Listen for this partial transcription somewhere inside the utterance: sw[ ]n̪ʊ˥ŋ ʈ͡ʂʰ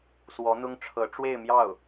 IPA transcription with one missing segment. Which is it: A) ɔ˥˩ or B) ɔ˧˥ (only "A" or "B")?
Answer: B